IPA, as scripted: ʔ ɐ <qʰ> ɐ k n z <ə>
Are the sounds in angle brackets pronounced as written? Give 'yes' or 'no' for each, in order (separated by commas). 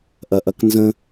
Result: no, no